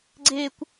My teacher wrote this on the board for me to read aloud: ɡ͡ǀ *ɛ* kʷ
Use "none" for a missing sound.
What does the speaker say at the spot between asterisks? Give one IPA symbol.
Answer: e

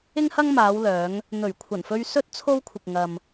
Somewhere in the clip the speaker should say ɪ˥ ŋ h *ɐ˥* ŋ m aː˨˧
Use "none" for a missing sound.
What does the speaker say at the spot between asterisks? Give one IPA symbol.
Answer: ɐ˥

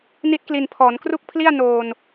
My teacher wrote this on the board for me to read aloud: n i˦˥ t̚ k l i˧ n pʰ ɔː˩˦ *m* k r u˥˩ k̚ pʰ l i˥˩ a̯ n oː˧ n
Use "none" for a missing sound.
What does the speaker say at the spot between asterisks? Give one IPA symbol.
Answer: n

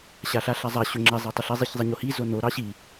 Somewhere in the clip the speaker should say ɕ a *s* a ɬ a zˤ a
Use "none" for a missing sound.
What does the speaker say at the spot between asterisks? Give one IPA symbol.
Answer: ɬ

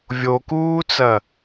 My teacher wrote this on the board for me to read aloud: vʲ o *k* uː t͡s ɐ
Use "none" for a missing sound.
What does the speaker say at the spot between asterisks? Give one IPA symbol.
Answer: k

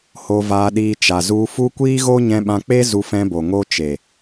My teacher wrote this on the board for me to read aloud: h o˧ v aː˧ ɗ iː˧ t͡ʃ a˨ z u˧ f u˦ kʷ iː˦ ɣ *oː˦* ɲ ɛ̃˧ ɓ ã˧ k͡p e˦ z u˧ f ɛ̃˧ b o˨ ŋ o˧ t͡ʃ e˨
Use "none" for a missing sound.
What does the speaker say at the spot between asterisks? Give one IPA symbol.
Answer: o˦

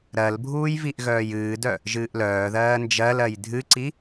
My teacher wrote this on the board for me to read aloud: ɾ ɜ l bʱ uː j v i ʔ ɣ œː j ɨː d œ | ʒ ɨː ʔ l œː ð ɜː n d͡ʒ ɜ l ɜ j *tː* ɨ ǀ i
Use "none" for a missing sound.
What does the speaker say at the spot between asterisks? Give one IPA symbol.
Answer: dʱ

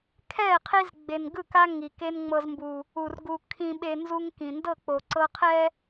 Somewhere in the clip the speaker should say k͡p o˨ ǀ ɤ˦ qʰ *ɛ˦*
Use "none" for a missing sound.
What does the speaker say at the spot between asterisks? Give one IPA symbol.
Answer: ɛ˦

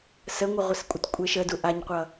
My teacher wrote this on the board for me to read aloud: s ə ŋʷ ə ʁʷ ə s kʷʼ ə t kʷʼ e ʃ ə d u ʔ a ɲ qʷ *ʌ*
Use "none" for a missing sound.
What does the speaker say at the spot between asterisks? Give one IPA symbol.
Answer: ʌ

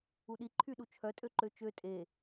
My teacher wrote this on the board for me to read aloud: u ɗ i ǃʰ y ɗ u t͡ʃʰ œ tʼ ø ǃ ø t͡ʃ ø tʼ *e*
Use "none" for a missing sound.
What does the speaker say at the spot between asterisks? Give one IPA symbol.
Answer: e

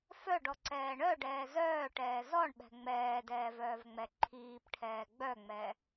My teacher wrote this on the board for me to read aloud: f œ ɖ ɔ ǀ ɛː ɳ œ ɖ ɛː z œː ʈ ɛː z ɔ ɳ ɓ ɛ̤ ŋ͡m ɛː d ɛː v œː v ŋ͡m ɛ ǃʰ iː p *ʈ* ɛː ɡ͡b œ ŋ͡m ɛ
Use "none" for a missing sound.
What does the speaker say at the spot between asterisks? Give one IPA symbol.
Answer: ʈʰ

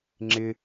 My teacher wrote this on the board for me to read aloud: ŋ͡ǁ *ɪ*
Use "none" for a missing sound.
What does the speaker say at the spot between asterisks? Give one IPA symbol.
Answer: ɪ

